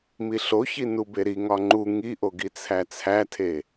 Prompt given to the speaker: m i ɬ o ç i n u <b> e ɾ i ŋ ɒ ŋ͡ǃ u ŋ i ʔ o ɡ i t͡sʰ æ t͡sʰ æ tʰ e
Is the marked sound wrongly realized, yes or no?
no